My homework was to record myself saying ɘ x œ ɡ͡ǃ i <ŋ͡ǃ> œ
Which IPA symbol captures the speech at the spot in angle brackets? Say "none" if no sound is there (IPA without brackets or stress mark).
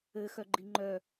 ŋ͡ǃ